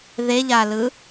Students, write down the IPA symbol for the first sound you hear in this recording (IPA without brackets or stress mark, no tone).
ð